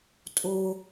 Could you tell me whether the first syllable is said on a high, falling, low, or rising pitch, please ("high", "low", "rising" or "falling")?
high